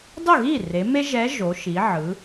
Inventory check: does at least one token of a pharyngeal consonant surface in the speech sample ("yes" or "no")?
yes